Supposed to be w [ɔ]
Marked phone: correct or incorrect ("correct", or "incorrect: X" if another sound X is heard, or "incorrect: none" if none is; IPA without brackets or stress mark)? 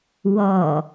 correct